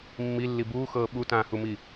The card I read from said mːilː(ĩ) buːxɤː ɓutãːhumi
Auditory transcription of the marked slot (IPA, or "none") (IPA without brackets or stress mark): i